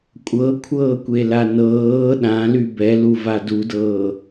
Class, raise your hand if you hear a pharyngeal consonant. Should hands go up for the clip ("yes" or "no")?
no